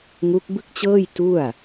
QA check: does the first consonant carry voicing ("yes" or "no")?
yes